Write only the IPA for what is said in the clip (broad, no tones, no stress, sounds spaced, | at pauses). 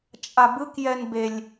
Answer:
t͡ʃʼ a b ɯ k j ɛ n b e lʲ